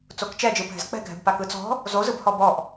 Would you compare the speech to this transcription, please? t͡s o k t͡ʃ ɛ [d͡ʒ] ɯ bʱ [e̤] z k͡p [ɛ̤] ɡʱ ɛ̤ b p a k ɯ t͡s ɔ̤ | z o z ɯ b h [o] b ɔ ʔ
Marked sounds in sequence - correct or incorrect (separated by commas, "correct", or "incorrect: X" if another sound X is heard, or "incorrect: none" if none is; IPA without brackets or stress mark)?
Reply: correct, incorrect: ɛ̤, correct, incorrect: ɔ